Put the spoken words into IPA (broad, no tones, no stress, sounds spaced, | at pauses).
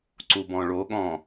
ǀ u b ɔ̃ ɭ o ɠ ɔ̃